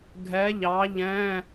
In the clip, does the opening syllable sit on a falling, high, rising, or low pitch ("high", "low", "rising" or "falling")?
rising